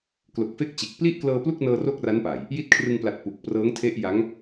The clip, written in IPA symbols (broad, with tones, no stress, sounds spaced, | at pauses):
k l o˨˩ k̚ f e˥˩ k̚ t͡ɕ e˨˩ k̚ p l i˥˩ ʔ k l ɤː˧ p l u˥˩ k̚ n ɤː˧ r o˥˩ k̚ r a˦˥ n p a˨˩ j | j i˦˥ t̚ kʰ r ɯ˧ ŋ p l a˨˩ t̚ p u˨˩ k̚ p r ɤː˦˥ ŋ tʰ e˦˥ ʔ j a˦˥ ŋ